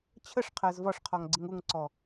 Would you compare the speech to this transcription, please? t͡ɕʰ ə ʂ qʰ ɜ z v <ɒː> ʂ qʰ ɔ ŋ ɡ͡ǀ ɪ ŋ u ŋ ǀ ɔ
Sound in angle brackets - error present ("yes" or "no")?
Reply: yes